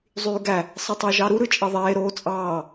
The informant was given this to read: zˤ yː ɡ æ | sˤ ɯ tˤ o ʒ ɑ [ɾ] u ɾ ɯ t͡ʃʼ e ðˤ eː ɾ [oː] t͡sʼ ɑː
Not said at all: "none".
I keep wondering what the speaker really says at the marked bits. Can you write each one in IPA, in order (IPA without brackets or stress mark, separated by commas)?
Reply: ɾ, oː